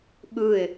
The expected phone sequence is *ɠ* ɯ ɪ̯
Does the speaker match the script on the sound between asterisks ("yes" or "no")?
yes